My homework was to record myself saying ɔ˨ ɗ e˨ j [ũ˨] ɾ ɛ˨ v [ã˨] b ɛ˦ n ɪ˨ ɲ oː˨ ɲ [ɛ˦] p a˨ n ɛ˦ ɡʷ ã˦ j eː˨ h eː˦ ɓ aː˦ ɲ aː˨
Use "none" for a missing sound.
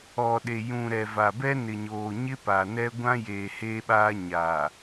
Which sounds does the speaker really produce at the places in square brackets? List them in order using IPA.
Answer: ũ˨, a˨, ɪ˦

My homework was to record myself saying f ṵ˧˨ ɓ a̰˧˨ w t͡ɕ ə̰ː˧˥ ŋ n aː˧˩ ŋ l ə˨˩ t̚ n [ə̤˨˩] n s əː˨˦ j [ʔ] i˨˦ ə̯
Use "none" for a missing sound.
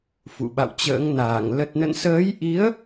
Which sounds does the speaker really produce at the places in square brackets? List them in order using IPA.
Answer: ə̰˧˨, ʔ

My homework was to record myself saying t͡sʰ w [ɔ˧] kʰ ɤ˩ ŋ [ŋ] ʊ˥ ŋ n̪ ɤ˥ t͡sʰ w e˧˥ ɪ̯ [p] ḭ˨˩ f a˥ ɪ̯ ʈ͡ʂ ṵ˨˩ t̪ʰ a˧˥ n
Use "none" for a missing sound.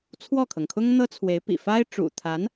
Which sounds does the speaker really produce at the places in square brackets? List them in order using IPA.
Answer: ɔ˥˩, kʰ, p

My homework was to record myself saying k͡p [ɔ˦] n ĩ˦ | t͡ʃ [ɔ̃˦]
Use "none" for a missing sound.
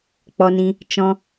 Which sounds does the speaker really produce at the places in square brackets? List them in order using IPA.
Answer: ɔ˦, ɔ̃˦

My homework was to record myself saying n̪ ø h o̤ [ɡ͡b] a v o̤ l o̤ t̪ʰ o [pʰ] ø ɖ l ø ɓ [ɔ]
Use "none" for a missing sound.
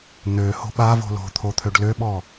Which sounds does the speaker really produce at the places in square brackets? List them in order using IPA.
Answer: ɓ, t̪ʰ, ɔ

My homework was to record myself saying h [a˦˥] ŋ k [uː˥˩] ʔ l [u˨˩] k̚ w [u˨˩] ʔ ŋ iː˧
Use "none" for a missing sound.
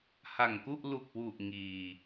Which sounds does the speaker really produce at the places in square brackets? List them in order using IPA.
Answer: a˨˩, u˥˩, u˨˩, u˨˩

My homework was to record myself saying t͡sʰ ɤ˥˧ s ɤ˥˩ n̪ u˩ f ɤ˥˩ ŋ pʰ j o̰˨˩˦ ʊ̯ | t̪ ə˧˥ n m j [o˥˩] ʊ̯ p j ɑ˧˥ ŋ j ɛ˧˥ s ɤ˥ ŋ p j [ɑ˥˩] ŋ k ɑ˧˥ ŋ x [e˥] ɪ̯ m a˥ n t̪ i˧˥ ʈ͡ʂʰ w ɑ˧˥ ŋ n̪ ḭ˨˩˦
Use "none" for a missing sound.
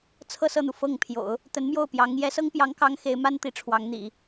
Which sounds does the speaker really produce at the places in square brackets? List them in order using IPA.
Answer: o˥˩, ɑ˧˥, e˧˥

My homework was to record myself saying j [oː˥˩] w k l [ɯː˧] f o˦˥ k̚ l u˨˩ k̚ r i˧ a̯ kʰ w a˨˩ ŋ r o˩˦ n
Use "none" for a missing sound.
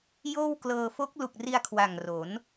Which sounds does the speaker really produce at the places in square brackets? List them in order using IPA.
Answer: oː˥˩, ɤː˧

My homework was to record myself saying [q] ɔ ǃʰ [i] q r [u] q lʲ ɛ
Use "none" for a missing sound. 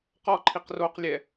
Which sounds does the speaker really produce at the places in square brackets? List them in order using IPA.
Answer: q, i, o

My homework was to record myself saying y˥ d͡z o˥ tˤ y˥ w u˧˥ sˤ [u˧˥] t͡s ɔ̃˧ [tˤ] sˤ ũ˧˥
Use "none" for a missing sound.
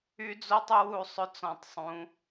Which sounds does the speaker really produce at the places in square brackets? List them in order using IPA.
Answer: ʏ˧˥, tˤ

